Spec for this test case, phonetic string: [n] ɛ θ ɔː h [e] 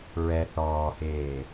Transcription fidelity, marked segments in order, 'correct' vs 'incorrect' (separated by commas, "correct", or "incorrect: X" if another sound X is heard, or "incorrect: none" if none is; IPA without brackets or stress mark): incorrect: ɹ, incorrect: eː